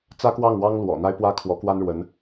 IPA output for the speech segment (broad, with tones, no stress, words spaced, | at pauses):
t͡sä˥kwɑ˥˩ŋwɑ˥ŋ lwɔ̰˨˩n̪a˥ɪ̯pwä˥ kʰwɔ˧˥kwa˥nɻwə˧˥n